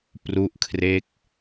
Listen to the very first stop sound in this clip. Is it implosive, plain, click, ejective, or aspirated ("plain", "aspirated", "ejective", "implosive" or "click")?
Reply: plain